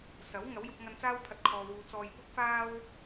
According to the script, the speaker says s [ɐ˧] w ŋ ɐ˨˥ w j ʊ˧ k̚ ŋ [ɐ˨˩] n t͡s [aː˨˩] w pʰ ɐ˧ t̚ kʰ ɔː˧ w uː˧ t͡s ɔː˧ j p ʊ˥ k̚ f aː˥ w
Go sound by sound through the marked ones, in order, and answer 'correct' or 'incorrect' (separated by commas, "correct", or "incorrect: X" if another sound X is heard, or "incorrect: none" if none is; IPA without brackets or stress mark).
incorrect: ɐ˨˥, incorrect: ɐ˧, incorrect: aː˥